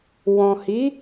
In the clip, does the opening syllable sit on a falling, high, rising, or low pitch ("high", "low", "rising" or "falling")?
low